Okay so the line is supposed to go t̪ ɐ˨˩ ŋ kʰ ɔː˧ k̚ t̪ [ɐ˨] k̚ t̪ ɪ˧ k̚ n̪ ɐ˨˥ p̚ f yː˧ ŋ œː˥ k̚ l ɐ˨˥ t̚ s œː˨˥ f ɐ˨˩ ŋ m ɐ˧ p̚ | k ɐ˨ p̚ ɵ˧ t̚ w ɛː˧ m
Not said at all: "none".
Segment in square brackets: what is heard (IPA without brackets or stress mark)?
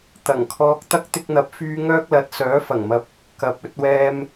ɐ˥